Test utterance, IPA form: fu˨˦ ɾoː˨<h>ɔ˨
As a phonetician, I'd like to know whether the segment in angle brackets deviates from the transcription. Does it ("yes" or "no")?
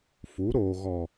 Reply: yes